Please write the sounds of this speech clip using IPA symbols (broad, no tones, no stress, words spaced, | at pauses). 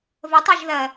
vətˤaʒðɜ